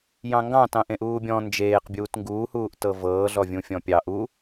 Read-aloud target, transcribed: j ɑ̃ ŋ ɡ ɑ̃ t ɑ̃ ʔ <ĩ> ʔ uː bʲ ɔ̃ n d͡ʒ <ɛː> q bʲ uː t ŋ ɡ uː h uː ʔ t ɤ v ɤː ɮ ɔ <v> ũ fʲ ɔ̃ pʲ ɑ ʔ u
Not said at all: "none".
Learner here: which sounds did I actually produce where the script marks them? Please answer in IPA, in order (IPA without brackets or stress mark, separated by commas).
ẽ, eː, vʲ